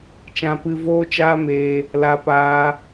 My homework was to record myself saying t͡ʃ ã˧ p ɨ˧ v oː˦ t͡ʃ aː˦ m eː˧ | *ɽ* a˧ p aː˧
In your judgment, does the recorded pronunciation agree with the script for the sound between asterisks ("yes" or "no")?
no